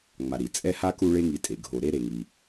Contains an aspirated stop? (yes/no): no